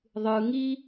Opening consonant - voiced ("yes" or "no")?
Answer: yes